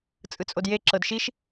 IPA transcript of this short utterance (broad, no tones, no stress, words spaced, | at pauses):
t͡sʼɯt͡sʼodje ǁɤdʃiʃ